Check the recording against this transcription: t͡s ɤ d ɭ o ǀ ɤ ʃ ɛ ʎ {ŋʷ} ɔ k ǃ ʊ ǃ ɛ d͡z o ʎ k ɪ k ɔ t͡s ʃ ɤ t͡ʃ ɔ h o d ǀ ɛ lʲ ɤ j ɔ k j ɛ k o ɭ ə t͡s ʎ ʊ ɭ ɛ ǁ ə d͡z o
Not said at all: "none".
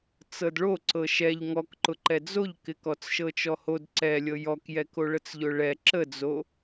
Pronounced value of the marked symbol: ŋ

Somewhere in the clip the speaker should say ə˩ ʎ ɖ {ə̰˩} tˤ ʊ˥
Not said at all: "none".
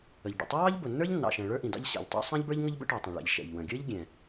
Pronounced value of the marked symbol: ə̰˩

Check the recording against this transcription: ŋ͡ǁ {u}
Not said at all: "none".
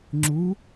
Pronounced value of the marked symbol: u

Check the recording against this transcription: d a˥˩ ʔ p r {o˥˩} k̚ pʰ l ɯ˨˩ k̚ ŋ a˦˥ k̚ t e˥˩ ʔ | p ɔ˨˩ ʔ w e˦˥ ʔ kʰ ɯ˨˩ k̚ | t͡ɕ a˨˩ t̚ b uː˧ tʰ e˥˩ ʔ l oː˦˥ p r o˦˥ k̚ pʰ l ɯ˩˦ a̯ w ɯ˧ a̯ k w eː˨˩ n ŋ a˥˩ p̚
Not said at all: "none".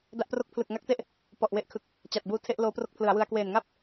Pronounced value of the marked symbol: o˥˩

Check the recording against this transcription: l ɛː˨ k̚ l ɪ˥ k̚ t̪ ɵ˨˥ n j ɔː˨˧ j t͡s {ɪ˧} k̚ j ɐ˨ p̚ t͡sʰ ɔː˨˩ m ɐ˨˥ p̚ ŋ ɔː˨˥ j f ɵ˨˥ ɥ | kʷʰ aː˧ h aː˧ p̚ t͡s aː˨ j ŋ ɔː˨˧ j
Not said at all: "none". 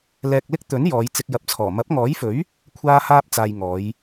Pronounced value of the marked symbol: ɪ˧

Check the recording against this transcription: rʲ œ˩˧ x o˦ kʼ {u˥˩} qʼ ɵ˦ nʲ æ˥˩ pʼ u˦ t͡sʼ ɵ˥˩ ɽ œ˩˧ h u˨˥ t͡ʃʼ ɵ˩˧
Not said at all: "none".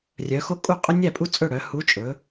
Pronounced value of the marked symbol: u˥˩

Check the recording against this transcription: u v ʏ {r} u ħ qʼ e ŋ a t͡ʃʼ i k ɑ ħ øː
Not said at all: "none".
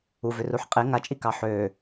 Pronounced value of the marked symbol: r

